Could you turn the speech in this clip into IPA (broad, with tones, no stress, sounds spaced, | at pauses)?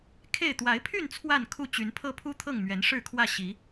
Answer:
kʰ e˥˨ ɪ̯ t̪ w a˨˦ ɪ̯ pʰ y˥˨ n t͡sʰ w a˥˨ n kʰ u˥˨ t͡ɕ y˨˦ n pʰ ɤ˦ pʰ u˦ t̪ʰ ɤ˥˨ ŋ m ɥ ɛ˨˦ n ʂ ɻ̩˥˨ kʰ w ä˥˨ ɕ i˨˦